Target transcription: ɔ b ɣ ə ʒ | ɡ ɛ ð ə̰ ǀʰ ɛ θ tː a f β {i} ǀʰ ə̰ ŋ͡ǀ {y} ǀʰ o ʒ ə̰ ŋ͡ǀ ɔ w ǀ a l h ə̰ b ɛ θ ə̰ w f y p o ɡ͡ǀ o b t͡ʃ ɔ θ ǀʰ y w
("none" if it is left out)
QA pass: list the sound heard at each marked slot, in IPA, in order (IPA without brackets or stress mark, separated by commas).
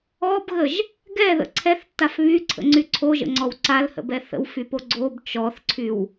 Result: y, y